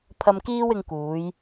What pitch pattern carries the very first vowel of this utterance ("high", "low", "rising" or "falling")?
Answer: low